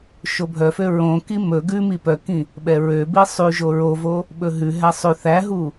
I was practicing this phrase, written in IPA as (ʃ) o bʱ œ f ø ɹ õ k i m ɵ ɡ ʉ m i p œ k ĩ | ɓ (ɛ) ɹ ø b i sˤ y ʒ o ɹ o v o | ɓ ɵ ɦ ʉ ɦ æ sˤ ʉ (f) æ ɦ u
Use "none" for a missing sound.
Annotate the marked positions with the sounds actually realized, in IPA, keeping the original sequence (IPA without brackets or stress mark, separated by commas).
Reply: ʃ, ɛ, θ